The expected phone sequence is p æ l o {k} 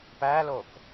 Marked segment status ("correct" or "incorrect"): correct